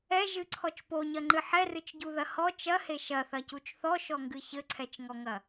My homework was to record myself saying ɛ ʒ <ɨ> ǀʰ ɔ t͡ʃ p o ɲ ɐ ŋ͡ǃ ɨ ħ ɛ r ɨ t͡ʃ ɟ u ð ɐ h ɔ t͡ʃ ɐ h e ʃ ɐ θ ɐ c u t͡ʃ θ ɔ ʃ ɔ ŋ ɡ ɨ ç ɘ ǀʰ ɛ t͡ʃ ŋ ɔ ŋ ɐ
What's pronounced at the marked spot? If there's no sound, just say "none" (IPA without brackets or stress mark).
ɨ